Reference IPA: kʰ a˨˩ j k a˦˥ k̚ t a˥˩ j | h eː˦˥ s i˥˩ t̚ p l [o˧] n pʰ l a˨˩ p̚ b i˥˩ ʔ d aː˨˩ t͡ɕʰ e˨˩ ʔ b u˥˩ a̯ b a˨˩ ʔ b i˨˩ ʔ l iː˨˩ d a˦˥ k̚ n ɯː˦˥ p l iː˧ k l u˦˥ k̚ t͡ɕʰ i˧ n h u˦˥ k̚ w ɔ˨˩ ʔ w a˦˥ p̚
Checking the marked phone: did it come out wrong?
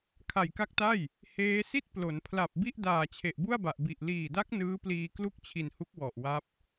yes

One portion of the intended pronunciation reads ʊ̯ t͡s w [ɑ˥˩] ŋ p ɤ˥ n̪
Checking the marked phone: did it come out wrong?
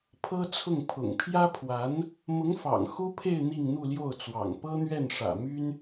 yes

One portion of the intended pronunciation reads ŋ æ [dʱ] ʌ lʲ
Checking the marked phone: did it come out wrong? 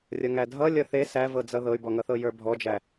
no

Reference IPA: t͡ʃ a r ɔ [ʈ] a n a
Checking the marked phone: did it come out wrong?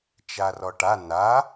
no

